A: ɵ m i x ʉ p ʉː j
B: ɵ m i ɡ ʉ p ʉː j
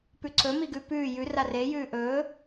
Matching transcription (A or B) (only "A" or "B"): B